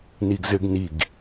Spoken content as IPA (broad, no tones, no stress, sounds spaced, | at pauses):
n i ɡ z ɘ ɡ n i ɡ